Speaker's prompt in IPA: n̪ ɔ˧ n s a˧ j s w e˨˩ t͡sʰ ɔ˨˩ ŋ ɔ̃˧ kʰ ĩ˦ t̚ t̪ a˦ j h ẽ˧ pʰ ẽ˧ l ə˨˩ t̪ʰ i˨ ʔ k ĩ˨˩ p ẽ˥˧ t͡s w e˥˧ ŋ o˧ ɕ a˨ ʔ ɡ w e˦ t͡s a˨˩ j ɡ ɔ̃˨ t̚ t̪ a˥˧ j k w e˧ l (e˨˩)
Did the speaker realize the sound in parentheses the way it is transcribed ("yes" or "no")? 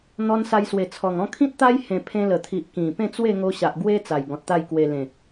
no